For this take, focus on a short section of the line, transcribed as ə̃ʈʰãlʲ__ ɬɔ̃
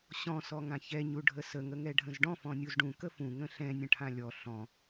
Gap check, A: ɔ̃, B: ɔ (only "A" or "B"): B